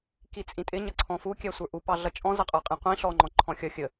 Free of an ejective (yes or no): no